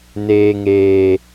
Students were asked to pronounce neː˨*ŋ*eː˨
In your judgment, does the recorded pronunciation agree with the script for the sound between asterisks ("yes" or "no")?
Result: yes